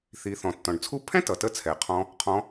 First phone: θ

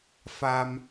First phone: f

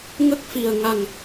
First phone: ŋ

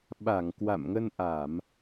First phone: ɓ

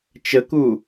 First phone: t͡ʃ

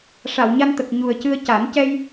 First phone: ʂ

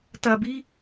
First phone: t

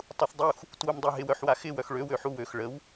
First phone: tˤ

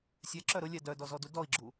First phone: sʲ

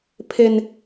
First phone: pʰ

